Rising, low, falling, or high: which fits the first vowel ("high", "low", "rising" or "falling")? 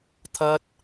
high